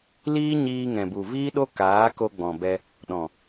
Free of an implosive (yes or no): no